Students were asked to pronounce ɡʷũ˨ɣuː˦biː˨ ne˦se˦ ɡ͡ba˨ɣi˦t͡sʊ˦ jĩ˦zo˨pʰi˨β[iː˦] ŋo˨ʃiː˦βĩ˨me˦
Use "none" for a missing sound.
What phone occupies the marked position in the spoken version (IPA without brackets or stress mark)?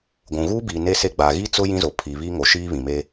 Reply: iː˦